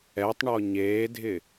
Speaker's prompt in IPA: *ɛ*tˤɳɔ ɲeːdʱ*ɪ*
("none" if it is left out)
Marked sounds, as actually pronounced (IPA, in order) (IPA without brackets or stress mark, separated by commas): ɛ, ɪ